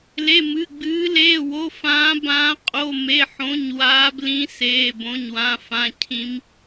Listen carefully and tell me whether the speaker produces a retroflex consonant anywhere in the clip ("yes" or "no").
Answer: no